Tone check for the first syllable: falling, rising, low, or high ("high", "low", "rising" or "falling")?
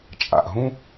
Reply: low